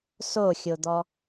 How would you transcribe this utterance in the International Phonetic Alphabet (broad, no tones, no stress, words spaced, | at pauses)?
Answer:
soxʲod̪ɔ